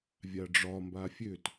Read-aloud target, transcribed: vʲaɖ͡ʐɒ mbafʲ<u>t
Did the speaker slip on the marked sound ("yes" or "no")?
yes